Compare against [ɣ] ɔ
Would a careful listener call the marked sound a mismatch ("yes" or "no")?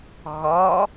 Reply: no